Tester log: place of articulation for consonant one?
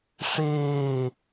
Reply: retroflex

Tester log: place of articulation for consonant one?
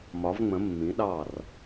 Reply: labial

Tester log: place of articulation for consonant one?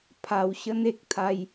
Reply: labial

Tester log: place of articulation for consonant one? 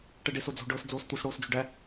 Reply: retroflex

